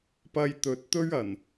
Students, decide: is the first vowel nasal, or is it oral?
oral